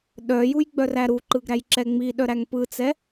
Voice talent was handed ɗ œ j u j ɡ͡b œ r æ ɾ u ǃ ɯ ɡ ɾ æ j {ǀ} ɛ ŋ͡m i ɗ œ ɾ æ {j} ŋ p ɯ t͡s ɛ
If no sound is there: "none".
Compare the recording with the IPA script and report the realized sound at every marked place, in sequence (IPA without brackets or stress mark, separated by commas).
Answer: ǁ, none